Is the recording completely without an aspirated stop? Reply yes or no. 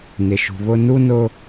yes